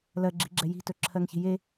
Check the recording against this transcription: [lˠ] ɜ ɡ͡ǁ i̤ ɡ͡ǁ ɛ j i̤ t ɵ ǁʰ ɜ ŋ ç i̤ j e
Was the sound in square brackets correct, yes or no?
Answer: no